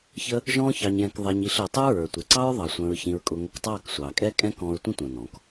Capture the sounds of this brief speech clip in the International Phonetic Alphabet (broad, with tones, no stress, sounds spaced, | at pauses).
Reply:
ç ə˦ | ʒ ɔ̃ː˦ ç ɑ˧ ɲ j ɛ̃˧ k ðˤ ɛ˧ ɲ i˧ ɬ əː˨ tˤ ə˞˦ ɹ ə˞˨ tʷ ɪ˨ ǀ ɑ˦ ɹ ðˤ ɑ˨ sʷ ə̃ː˧ ɹ ç ĩ˧ ɹ kʼ ʊ˧ ŋ ə˨˦ k tˤ ɑː˦˨ k sʷ ɑː˨ kʼ ɛː˦ kʼ ɛ̃˦ k ɔ̃ː˧ ɹ tʷ ĩ˦ tʷ ə̃ː˨ n ɔ̃˨˦ k